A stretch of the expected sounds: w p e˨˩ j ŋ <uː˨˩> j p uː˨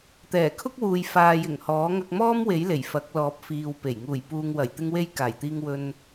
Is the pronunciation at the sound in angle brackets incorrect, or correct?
correct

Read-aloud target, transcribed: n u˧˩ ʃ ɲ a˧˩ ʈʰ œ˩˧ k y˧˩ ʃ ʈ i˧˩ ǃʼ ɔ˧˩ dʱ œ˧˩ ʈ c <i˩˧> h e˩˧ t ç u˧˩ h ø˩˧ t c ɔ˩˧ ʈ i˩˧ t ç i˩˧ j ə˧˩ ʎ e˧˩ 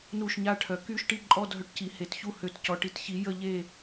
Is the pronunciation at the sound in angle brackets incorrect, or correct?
correct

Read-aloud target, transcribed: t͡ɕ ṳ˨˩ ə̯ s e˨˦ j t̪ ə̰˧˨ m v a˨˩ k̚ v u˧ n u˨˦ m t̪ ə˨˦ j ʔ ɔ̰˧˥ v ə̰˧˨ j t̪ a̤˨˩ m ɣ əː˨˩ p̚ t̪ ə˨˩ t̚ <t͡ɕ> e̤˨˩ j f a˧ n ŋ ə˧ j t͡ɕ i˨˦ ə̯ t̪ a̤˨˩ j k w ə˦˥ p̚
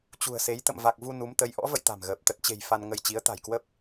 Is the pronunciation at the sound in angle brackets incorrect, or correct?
correct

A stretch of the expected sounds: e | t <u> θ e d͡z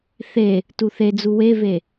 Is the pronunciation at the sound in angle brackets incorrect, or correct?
correct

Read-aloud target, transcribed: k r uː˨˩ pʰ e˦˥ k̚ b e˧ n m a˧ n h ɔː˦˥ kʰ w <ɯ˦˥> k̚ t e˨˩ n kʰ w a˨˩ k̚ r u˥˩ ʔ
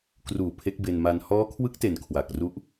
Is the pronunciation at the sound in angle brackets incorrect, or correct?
correct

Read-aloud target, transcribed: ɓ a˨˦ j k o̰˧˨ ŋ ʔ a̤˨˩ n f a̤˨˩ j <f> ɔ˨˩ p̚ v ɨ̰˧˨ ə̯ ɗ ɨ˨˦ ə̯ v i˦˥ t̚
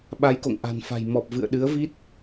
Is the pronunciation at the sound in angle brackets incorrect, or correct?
incorrect: m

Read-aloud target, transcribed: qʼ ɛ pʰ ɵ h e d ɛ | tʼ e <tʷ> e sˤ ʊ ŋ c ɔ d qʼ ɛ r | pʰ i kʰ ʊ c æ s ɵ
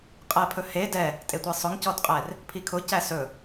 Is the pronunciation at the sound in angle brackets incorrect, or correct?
correct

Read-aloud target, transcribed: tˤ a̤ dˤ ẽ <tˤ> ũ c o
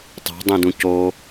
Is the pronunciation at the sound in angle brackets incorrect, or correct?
incorrect: d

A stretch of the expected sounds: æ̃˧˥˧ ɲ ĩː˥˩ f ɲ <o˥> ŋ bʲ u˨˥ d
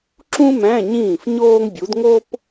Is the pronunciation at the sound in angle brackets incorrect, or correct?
incorrect: oː˥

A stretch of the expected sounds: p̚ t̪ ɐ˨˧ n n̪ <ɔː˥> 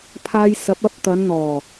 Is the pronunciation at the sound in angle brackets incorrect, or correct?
incorrect: ɔː˨˩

